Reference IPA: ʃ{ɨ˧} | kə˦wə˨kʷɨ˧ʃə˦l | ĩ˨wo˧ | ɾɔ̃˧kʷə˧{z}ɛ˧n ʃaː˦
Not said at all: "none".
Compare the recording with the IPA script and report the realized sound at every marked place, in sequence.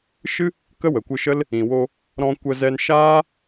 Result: ɨ˦, z

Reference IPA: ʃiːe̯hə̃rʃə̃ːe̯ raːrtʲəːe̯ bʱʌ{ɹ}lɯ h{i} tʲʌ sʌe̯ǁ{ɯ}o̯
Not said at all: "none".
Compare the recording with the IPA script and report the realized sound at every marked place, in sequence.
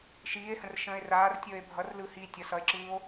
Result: r, i, ɯː

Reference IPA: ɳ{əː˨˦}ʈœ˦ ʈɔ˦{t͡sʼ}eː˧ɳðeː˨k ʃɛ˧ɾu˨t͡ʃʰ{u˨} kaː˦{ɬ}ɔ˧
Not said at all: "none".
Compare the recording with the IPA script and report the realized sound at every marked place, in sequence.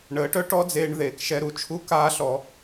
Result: əː˨˦, d͡z, u˦, ɬ

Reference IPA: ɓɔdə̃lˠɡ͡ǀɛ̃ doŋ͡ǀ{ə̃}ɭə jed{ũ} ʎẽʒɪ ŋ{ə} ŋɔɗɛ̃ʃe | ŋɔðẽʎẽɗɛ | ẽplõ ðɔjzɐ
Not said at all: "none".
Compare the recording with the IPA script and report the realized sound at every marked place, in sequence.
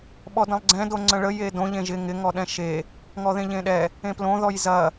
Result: ə̃, õ, ɪ

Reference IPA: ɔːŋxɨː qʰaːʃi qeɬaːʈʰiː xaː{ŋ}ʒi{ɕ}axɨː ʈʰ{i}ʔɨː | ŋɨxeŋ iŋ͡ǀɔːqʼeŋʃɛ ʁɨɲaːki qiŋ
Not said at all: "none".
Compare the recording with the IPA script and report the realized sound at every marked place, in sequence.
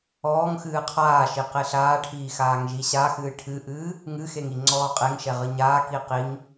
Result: ŋ, ɕ, ɨ

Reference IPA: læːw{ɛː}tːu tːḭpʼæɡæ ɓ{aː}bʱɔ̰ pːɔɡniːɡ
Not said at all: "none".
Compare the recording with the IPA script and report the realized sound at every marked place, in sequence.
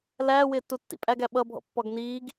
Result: ɪː, ʌː

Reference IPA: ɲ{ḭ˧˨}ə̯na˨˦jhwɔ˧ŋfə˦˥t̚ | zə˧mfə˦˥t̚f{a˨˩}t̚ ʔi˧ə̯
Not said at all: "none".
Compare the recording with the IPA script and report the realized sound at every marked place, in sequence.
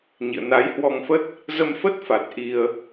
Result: ḭ˧˨, a˨˩

